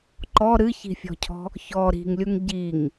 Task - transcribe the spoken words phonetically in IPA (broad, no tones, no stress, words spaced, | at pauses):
ǃɔ ɾɨçi̤fʲɔ̤cʰɔ̤ | çɔ ɾi̤ŋlʲuŋ ɟiŋ